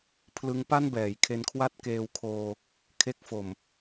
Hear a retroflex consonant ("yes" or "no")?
no